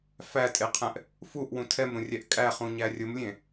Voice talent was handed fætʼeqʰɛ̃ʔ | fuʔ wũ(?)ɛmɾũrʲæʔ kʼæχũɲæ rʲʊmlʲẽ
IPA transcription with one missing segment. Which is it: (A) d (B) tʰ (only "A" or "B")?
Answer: B